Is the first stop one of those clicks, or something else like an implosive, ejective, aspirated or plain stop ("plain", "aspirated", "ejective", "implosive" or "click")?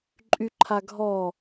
click